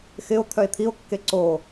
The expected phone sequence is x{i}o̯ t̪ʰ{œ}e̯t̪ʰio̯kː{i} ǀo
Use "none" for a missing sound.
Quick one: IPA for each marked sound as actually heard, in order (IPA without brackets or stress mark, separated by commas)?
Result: ɪ, œ, e